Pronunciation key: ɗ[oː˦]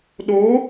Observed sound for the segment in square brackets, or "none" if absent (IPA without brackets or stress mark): oː˨˦